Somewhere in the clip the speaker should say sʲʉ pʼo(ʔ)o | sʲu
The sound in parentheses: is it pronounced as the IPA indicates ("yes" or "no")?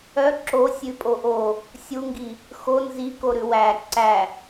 yes